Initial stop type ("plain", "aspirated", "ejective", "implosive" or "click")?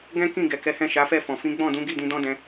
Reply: plain